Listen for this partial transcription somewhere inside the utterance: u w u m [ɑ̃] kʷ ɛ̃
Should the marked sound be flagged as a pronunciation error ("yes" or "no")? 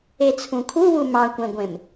no